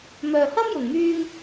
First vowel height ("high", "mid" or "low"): mid